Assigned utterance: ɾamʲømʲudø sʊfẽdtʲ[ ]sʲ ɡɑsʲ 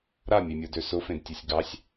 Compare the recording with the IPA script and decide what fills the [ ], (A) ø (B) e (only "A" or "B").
A